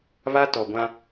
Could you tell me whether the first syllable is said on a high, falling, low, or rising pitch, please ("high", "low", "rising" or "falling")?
high